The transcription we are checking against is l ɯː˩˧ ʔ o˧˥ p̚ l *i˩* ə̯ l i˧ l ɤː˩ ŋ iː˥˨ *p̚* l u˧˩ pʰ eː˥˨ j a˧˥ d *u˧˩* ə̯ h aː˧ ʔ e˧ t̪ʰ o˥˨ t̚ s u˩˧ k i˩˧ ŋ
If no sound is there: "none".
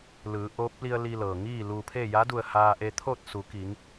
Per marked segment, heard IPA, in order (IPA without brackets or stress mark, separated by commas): i˧, none, u˧˩